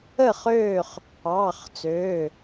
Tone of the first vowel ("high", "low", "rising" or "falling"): falling